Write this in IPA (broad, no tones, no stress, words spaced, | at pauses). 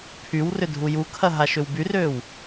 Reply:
pʰywrʏ dʱujukʰɐ ɦaʃʏwbyrøːw